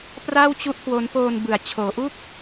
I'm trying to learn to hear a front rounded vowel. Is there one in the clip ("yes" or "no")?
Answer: no